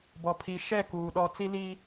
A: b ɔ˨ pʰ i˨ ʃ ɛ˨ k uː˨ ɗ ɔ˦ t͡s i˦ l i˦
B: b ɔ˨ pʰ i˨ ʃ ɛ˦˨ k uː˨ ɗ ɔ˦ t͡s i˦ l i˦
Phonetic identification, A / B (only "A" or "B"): B